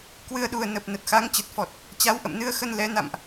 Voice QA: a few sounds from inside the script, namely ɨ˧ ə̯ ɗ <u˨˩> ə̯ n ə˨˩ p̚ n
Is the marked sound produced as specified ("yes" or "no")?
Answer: yes